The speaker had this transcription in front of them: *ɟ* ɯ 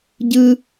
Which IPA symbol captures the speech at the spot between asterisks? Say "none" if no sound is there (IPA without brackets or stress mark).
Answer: ɟ